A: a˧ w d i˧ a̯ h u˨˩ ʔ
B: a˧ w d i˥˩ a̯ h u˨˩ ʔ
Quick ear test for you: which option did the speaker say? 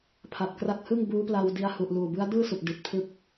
A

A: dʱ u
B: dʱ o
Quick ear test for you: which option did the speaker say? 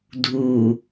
A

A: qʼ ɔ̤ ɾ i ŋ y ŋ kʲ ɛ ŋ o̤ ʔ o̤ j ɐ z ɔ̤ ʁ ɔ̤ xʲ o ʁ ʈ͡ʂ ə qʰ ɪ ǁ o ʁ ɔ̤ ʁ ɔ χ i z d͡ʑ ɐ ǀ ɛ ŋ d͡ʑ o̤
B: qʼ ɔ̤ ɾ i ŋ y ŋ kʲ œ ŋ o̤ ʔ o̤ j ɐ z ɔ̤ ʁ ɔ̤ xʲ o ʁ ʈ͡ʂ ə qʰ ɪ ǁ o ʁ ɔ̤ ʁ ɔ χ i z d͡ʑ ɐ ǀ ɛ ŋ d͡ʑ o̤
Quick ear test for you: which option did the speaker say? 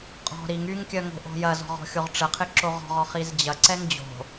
B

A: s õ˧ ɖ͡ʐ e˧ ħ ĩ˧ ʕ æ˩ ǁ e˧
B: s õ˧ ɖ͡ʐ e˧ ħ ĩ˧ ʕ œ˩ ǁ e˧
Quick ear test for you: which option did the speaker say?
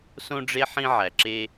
A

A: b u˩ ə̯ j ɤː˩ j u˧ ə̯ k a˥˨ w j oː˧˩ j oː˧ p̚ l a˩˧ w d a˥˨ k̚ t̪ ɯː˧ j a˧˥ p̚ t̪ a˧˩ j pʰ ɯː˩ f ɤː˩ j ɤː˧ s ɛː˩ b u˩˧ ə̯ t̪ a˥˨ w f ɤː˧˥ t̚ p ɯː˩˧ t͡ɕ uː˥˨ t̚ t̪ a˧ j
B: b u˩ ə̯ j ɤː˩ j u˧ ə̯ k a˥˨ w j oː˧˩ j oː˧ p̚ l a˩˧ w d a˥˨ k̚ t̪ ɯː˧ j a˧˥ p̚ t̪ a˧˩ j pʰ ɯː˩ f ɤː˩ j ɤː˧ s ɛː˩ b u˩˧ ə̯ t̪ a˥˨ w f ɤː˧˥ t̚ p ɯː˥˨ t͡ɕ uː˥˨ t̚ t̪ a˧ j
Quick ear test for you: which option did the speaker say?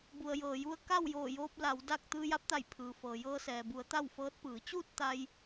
A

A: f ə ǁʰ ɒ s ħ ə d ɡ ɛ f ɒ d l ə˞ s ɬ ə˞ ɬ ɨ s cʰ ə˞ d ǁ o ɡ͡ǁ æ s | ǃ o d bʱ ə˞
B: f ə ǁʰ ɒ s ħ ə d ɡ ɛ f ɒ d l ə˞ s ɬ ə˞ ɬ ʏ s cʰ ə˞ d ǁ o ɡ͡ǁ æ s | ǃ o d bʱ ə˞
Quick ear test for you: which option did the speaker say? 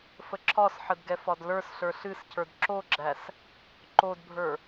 A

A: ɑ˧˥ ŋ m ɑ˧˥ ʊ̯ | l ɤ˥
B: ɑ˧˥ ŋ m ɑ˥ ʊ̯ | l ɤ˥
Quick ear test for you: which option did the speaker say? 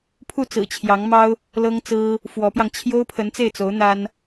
B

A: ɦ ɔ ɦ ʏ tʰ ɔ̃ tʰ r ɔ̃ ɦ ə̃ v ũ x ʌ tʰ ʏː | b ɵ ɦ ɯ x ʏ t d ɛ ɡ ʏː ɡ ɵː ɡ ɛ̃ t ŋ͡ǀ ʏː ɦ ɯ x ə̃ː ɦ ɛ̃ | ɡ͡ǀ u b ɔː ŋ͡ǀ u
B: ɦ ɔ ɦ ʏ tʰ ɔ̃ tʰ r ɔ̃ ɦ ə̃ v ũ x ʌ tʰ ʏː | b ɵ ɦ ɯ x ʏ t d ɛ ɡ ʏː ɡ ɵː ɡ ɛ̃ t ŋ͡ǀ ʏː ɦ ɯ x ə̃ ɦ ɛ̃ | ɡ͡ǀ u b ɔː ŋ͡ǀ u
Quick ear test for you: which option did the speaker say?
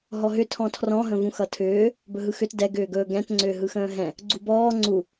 A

